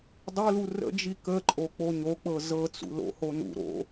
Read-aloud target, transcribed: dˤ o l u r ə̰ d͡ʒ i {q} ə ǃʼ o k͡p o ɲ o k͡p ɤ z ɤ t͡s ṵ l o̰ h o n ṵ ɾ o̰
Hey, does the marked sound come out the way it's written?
no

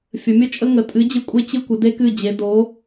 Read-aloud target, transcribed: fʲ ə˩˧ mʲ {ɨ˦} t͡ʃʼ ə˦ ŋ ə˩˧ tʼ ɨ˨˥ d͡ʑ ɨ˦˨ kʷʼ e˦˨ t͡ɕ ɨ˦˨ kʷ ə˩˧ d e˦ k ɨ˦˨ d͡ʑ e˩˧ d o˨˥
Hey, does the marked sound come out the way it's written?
no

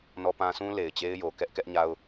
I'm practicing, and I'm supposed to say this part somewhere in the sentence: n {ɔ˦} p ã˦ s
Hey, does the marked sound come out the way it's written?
yes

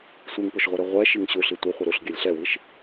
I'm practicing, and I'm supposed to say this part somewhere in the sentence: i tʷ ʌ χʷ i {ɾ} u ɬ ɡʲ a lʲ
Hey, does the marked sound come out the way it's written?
yes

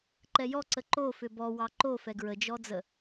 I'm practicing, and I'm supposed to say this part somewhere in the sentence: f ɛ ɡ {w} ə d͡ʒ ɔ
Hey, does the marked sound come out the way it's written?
no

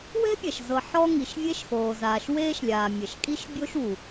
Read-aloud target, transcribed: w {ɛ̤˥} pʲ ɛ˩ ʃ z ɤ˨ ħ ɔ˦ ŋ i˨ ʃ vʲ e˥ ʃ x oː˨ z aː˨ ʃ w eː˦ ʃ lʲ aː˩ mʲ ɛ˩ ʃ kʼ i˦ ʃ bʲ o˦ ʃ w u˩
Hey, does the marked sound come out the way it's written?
yes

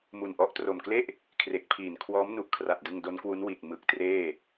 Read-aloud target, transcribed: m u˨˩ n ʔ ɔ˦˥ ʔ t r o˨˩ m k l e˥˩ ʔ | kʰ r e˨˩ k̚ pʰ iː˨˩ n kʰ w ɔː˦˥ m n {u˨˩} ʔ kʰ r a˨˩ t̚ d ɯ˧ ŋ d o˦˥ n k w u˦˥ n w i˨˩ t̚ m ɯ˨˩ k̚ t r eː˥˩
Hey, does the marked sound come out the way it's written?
yes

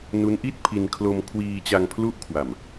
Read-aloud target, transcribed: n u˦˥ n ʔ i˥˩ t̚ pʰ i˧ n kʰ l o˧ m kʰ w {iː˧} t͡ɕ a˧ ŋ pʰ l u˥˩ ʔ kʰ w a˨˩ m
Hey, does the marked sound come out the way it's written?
yes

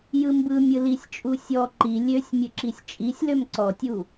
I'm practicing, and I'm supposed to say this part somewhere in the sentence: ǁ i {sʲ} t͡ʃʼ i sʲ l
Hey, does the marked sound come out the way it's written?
yes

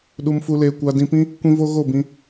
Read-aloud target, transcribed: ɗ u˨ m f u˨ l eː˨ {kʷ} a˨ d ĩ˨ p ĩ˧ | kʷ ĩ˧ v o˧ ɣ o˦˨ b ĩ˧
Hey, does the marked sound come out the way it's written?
yes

